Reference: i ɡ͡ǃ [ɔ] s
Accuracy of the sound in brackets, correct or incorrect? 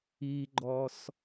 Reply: correct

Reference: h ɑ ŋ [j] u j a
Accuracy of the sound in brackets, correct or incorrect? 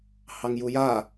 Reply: correct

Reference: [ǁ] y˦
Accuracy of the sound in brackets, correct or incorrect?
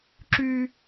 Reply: correct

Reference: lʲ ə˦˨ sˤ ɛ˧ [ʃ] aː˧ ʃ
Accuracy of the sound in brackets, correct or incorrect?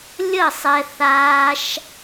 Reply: incorrect: θ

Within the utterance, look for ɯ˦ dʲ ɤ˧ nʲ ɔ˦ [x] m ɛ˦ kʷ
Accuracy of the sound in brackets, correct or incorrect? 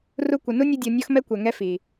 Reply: correct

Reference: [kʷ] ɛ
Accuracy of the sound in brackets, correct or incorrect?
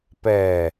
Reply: incorrect: p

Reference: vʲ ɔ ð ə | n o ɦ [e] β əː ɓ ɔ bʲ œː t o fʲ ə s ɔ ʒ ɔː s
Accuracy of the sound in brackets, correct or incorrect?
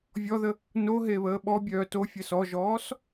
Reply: correct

